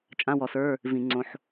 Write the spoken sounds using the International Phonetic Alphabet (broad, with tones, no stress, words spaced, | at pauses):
t͡ʃʼã˧˥˧wɔ˧˩˧s ə˞˧˥˧ | vĩ˧˩˧ŋ͡ǀõ˧ħ